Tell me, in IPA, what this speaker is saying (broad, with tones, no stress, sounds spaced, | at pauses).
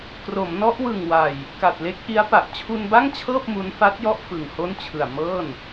k r o˩˦ m n ɔ˦˥ ʔ w ɯ˨˩ ŋ w a˨˩ j | k a˨˩ t̚ l e˦˥ k̚ ʔ i˦˥ a̯ p a˨˩ ʔ t͡ɕʰ u˧ n b a˥˩ ŋ t͡ɕʰ ɤː˥˩ p̚ m u˦˥ n f a˦˥ t̚ j ɔ˥˩ ʔ f ɯ˨˩ ŋ h o˥˩ n t͡ɕʰ ɯ˨˩ a̯ m ɤː˥˩ n